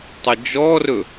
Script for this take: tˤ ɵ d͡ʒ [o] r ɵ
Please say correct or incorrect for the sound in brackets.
incorrect